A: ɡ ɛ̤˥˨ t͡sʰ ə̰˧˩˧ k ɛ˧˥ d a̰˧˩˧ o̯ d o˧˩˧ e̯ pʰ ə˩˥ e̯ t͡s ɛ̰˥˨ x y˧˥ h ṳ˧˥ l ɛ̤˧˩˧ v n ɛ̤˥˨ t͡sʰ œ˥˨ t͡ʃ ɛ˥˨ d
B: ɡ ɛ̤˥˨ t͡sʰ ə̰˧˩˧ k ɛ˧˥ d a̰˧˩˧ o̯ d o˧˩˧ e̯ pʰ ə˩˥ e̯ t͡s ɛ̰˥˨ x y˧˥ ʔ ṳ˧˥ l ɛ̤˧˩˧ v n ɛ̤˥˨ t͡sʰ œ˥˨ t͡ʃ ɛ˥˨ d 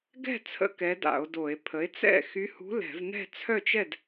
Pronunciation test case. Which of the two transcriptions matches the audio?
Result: A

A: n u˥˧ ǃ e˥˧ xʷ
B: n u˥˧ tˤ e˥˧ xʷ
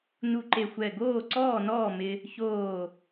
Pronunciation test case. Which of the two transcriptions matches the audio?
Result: A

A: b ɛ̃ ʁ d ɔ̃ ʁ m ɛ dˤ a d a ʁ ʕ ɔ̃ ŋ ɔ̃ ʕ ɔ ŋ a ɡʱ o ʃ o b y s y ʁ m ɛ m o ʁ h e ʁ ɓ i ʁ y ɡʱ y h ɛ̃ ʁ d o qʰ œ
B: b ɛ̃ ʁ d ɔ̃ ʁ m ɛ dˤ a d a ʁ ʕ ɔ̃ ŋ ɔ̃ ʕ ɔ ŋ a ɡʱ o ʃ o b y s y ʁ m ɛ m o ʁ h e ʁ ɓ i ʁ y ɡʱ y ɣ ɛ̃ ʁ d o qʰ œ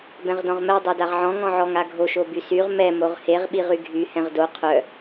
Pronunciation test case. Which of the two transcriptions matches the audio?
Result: A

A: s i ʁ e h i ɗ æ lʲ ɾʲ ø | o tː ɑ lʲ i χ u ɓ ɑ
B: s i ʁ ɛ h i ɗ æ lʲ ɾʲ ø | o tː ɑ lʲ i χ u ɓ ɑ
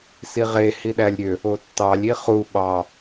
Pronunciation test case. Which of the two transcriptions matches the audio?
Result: A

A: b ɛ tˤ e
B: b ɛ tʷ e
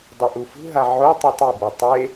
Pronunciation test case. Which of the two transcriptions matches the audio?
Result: A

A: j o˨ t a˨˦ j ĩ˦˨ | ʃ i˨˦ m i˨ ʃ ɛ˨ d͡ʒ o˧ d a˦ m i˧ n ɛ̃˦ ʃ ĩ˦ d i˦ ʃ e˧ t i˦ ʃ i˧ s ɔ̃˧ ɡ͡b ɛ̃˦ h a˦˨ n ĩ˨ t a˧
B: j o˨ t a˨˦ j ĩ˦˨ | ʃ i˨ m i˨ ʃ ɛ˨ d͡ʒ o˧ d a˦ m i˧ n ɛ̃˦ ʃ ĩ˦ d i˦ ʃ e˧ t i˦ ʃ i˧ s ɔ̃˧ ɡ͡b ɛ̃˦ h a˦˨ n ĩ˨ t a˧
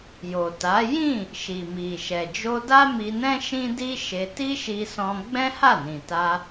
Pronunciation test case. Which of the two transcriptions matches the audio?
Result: B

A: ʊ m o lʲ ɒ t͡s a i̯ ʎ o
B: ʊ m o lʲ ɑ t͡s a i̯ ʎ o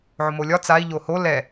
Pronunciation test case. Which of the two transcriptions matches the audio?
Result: A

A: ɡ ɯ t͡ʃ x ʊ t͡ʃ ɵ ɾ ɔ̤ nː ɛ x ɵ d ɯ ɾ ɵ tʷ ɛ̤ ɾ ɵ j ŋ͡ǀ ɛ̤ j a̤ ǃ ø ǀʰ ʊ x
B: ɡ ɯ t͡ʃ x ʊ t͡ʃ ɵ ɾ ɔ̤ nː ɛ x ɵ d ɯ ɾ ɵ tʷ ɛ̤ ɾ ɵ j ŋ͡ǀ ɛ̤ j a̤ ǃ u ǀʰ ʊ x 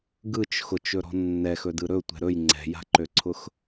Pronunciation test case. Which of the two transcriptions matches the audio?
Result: A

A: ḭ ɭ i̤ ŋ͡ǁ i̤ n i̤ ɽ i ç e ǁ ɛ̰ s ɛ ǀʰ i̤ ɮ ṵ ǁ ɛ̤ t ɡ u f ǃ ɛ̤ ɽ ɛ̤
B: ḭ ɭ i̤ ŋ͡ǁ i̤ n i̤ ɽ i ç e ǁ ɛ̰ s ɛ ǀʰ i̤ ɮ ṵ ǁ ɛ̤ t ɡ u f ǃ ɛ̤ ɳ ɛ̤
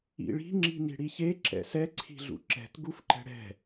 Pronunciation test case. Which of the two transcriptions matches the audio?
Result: A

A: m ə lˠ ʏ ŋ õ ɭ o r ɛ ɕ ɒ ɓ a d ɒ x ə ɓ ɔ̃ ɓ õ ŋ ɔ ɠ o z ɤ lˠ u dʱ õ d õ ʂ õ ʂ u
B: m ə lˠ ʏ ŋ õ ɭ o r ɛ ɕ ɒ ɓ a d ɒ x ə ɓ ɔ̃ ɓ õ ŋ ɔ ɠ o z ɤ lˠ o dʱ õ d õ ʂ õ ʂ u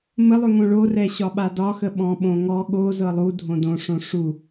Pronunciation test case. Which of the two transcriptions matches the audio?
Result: A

